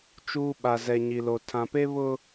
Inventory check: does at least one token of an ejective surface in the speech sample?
no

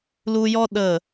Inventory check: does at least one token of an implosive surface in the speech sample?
yes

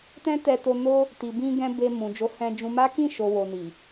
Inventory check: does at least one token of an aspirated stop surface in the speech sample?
no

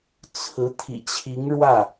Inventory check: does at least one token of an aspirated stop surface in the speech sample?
yes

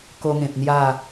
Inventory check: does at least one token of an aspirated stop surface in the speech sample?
no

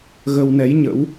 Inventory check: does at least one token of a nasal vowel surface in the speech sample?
no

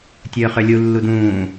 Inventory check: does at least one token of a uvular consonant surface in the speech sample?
yes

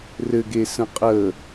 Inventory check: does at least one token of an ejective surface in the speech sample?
yes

